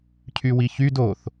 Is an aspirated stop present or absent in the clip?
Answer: present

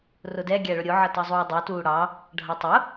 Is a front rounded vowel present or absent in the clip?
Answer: absent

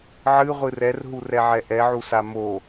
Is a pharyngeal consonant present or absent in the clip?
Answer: present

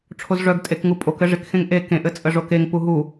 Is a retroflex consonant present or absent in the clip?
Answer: present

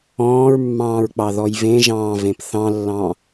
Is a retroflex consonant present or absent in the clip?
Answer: absent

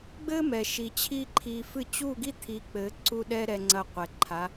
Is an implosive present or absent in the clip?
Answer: present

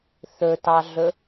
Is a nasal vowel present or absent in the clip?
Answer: absent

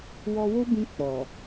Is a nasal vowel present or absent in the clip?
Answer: present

